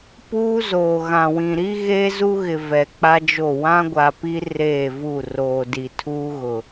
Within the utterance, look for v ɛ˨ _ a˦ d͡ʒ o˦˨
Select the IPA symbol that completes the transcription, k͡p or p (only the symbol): k͡p